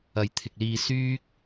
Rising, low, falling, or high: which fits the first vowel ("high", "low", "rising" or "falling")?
low